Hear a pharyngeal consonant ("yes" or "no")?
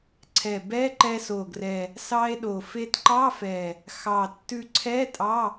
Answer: no